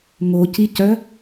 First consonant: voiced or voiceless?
voiced